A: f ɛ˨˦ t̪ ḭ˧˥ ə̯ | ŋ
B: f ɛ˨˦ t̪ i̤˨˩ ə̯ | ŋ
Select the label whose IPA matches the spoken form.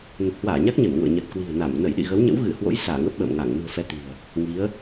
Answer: B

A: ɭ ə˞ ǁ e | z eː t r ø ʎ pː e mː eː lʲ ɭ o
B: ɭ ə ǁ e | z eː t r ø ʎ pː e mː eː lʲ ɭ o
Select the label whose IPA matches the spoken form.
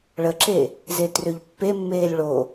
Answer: B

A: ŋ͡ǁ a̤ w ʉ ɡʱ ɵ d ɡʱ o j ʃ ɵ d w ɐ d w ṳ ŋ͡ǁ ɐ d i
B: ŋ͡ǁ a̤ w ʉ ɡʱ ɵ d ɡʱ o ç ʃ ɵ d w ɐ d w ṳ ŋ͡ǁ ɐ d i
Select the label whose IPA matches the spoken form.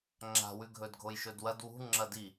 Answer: A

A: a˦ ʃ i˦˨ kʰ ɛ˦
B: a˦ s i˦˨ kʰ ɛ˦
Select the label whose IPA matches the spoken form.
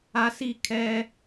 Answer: B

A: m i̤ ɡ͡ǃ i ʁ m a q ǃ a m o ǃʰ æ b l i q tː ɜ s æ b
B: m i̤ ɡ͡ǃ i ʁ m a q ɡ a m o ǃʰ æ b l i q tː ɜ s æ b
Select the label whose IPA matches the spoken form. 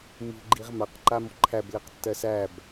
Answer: A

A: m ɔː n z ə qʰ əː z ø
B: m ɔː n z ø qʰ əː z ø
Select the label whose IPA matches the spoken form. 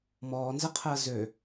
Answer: A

